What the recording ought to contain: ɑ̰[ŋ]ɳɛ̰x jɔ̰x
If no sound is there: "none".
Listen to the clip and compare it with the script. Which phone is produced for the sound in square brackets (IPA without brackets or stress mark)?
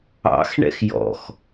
x